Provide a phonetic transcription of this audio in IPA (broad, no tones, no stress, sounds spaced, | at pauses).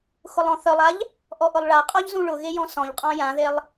x ʊ lˠ ɔ̃ θ œ lˠ a ʎ | ʔ ɔ ʔ ʊ lˠ ɭ a qʼ ɔ ʎ z ũ ɭ ʊ ɣ e j ɔ̃ s ɔ̃ ʎ qʼ ɔ̃ j ã ð e lˠ